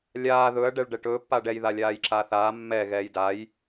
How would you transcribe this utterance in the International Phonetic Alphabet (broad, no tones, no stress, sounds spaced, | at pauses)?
lʲ aː ð ɵ ɐ̯ ɖ ɛ ɭ ɖ ɛ ʈ ɵː pː a ɖ ɛ j ð a lʲ aː j ǁ a θ aː mː ɛ ɣ ɛː j d a j